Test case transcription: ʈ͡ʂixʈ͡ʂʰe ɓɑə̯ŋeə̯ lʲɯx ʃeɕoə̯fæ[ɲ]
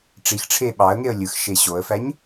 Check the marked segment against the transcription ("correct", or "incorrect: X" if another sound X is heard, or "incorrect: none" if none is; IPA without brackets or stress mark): correct